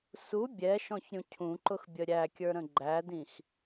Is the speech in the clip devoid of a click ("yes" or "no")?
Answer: no